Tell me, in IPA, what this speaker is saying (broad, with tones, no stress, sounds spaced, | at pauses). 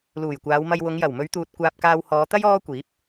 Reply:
l uː˨˩ j kʷ aː˨˧ w m ɐ˧ j w ʊ˨˧ ŋ j ɐ˨˩ w m ɵ˨˧ ɥ t̪ uː˨ t̚ kʷ aː˧ p̚ k aː˧ w h ɔː˨˧ t̪ ɐ˥ j ɔː˥ kʷ iː˨˥ p̚